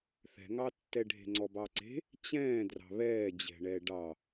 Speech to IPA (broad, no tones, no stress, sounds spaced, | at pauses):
θ ɛ̤ ŋ ɑ tː ɛ ɖʱ e̤ ŋ͡ǀ ɔ b ɑ ǀ e̤ | t͡ɕ ɛ̃ː d r ɑ̤ β ɛː d͡ʑ ɛ̤ ɳ ɛ ɖ ɑ